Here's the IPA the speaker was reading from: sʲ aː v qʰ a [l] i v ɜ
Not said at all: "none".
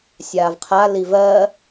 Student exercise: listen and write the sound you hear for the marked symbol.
l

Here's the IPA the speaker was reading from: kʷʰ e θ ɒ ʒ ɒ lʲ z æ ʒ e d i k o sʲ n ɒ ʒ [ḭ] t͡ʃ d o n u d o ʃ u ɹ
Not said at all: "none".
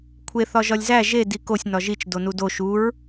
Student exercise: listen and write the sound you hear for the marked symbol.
i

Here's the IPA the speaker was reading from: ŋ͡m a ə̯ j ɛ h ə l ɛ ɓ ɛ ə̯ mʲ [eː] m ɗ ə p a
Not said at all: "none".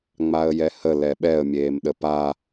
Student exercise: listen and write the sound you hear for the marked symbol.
eː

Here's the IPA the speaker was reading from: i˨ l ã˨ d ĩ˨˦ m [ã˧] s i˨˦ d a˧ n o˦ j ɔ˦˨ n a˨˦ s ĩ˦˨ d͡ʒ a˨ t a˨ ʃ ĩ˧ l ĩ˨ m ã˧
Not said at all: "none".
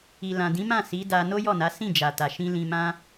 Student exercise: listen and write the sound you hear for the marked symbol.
ã˦˨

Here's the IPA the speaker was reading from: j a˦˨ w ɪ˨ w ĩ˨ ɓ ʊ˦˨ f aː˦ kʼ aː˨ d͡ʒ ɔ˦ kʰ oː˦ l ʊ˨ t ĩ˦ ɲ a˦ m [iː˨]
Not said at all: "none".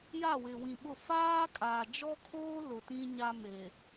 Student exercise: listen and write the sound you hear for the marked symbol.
eː˨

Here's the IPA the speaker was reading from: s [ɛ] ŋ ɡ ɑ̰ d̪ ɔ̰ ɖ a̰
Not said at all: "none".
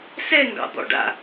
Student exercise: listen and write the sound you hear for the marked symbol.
ɛ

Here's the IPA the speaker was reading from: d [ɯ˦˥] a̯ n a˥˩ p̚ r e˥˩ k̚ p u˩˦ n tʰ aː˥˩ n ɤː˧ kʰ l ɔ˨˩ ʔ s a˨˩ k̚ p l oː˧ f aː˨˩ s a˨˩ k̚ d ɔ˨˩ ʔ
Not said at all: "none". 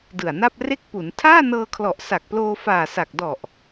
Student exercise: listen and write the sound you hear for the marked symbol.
ɯ˨˩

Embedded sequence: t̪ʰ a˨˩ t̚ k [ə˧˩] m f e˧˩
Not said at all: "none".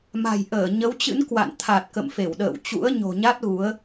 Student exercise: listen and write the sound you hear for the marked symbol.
ə̰˧˨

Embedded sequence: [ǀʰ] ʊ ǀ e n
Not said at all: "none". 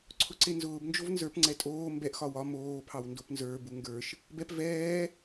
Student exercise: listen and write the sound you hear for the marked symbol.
ǀʰ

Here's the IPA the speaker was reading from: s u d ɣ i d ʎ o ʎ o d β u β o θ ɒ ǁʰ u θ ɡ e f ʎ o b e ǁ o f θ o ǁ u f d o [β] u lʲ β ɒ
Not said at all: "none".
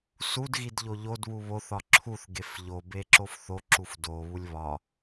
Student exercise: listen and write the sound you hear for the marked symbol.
β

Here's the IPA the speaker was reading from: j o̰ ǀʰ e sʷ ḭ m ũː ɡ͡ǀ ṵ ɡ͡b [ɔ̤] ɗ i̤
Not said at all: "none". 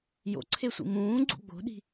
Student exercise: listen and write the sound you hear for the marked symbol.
o̤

